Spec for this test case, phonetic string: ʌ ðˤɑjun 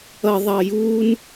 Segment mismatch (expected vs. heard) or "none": none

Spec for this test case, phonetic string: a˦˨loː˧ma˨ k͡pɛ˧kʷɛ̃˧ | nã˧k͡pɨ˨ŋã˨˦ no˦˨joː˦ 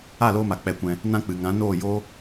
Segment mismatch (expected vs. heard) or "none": o˦˨ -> oː˦˨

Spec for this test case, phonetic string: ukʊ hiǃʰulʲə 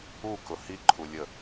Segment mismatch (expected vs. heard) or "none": none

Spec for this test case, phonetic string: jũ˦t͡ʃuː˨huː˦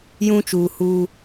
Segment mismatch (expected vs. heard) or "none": none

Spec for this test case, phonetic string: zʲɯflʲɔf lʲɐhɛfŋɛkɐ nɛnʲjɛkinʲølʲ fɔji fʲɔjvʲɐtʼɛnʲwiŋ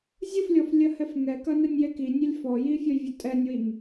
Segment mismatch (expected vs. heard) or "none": none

